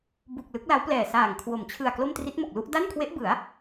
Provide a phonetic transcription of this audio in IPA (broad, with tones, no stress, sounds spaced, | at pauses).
b u˨˩ k̚ l ɯ˦˥ k̚ l a˦˥ w p l ɛː˨˩ s aː˨˩ ŋ kʰ w o˩˦ m t͡ɕʰ ɯ˨˩ a̯ k l o˥˩ m t r i˦˥ t̚ m o˨˩ k̚ l u˥˩ ʔ d a˥˩ n kʰ w e˦˥ ʔ b ɯ˩˦ a̯